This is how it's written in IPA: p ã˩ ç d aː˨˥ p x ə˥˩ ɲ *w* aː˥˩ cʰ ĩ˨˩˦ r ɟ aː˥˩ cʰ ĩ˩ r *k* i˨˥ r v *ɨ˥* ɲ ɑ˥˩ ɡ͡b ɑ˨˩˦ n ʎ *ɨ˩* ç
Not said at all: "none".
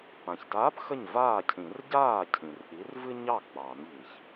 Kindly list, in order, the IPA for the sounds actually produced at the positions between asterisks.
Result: v, ʔ, ɨ˥, i˩

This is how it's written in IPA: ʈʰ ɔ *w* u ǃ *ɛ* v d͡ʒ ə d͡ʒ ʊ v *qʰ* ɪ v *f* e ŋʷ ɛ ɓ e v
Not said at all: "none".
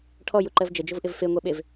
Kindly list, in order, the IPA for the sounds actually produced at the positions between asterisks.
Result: j, ɜ, ʔ, f

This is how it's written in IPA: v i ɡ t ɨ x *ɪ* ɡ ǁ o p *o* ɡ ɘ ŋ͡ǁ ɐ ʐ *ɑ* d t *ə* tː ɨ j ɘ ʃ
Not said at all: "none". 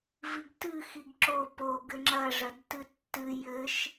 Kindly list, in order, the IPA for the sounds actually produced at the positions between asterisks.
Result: i, o, ɐ, ɨ

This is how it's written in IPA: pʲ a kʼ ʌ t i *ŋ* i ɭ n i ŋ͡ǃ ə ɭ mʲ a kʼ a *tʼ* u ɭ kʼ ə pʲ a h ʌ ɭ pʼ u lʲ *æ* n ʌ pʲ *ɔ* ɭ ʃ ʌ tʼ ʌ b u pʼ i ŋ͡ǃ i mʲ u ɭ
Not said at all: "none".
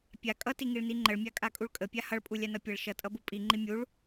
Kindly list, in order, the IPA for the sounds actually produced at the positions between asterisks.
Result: ŋ, kʼ, a, ə

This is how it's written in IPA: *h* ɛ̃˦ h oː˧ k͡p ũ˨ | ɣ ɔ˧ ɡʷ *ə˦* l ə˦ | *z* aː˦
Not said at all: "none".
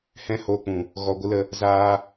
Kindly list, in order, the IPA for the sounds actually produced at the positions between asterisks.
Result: h, ɨ˦, z

